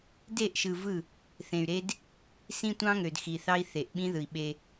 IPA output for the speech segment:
d e˦˨ ʔ ʃ ɯ˨ v ɯ˦˨ | θ ẽ˨ y̯ ɾ e˦ d | s ĩ˦ tʷ ɑ̃˦ ŋ ø˨ d x i˨ θ ɑ˦ i̯ θ e˨ ʔ ɓ ĩ˦ ð ɯ˨ i̯ ɓ e˦

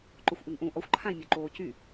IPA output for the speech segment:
ǃ o xʷ ʔ y ŋ ʔ ũ ʔ ɔ xʷ ǃʰ ã i̯ mʲ o ǃ oː c y

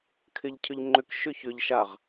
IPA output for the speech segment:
kʰ ɪ ʎ cʰ ʏ ʎ ŋ͡ǃ ʏ k ʃ ʏ ç ʏ ʎ ʃ a ʁ

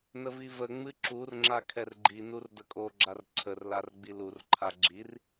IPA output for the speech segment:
n ə v i v ə ŋ͡m ɨ ǁ u r ŋ͡ǁ a kʰ ɛ r ɡ͡ǃ i n u r d ə kʼ o ɡ͡ǁ a r ǀʰ ə r l a r ɡ͡b i l u r ǃʰ a ɡ͡ǁ i r

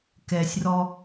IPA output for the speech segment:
k ɛ sʲ r ɔ

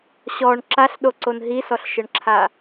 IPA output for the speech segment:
ɕ ɔ ɳ ǁ a ɬ ɗ o ǀ o n ɦ i s ɔ ɬ ʃ ɘ ɳ ǁʰ a

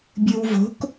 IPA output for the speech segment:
bʲ ɯ w v o̤ k

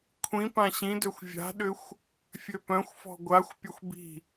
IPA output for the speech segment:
kʷʰ ĩ p ã ɕ ĩ d ø xʷ vʲ a̤ ɗ ʏ xʷ | fʲ ø p œ̃ xʷ f ɔ̤ ɡʷ a xʷ pʲ ɐ xʷ b i̤

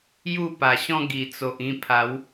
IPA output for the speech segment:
j u˥˧ p a˨˩ ɕ ɔ̃˦ ɡ i˨˩ t͡s o˨ ʔ ĩ˧ pʰ a˨˦ w

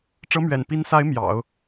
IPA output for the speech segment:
ʈ͡ʂ ɤ˧˥ m ɥ ɛ̰˨˩ n p i˧˥ n s a˧˥ ɪ̯ m j ɑ̰˨˩˦ ʊ̯

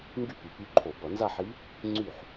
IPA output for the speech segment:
ŋ ɡ y˥˩ p y˨˩ p y˧˥ ǃʰ o˧˩˧ b ʌ˧˩˧ n z a˥˧ ħ i˧˥ | ŋ͡ǀ y˥˩ ħ

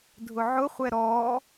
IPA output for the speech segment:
dʱ ʊ ʕ ʊ χʷ ɛ ɾ ɔ

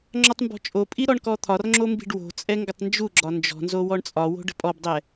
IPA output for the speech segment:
ŋ͡ǁ ɔ tˤ m b ɔ̤ t͡ʃʼ o pʼ i ɾ ɔ ɳ k ɔ t̪ʰ ɒ r ŋ͡ǁ o m b i̤ ɖ w o̤ t͡sʼ ɛ ŋ ɡ ə tˤ n d͡ʒ u ɡ͡ǁ ɒ n d͡ʒ ɔ̤ n z o w ɔ ɳ t͡sʼ ɒ w o̤ ɖ ə̤ pʼ ɔ b dˤ ɛ

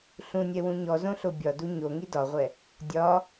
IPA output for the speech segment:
ɬ ũ nʲ ɛ w ũ ɲ ɔ z õ ɬ o bʲ ɒ d u ɲ o ŋ i d ɒ ʁʷ ɛ | dʲ ɒ

